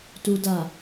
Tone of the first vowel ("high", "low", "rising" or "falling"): low